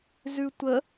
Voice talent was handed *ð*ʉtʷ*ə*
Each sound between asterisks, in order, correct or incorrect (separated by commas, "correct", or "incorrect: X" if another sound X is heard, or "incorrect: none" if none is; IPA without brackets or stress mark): incorrect: z, correct